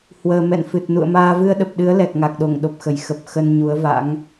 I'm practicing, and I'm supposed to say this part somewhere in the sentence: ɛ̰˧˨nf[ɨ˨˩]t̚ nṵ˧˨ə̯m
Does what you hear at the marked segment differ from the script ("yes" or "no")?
no